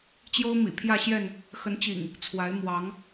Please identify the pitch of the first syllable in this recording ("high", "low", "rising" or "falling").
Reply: high